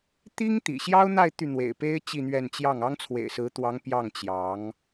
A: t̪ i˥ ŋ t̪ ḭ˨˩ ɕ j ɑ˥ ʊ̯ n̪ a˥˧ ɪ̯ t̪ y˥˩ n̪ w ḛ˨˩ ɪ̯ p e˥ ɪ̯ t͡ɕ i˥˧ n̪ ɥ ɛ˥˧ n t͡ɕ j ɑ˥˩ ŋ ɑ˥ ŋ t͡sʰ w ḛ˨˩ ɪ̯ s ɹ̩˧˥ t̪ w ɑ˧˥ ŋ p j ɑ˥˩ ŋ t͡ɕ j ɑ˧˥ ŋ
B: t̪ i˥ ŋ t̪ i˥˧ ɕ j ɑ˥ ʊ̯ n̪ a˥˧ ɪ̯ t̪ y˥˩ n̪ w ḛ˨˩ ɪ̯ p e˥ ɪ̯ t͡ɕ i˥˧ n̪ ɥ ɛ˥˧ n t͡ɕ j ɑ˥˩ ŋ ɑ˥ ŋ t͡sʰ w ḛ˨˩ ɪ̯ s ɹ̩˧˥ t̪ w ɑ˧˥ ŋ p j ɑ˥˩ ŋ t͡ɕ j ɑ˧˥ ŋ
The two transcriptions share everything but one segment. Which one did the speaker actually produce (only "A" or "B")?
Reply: A